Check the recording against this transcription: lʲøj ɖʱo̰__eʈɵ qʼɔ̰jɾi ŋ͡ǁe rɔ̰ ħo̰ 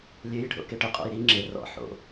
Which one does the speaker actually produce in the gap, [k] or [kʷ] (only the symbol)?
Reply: k